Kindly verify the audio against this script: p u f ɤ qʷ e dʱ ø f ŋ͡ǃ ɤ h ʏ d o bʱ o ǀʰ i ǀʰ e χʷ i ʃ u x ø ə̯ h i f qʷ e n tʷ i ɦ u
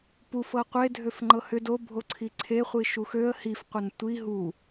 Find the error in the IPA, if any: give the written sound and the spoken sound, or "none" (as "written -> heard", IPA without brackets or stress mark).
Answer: none